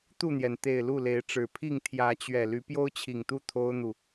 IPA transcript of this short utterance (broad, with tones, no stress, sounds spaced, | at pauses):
t̪ u˥˨ n̪ j ɛ˩ n t̪ e˨˩ ɪ̯ l u˥˨ l e˨˦ ɪ̯ ʈ͡ʂ ɻ̩˨˩ pʰ i˥˨ ŋ t̪ʰ j ä˨˦ t͡ɕ ɥ ɛ˨˩ l y˨˦ p j o˦ ʊ̯ t͡ɕʰ i˨˩ ŋ t̪ u˥˨ t̪ʰ o˦ ʊ̯ n̪ u˨